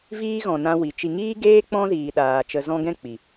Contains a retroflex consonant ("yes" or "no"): no